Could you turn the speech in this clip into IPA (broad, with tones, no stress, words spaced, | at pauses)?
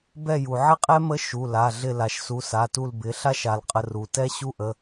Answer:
bɛ˦˨ju˩ ʕɪ˥qʼɛ˥ mə˧˥ ʃu˩˧˩la˩˧˩ɮɪ˦˨ la˩ʃsu˩˧˩ sa˩˧˩tu˦˨l bɪ˩˧˩ ɬa˥ʃa˩lqʼə˩˧˩r u˩tɛ˥ ɕu˥ʔə˩˧˩